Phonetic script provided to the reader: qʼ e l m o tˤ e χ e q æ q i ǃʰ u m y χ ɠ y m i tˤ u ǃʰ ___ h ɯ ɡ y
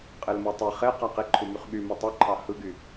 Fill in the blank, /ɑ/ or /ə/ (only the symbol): ɑ